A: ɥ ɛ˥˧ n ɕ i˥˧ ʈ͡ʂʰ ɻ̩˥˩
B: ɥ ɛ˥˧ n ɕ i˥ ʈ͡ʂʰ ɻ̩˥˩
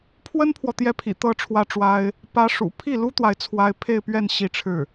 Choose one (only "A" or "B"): A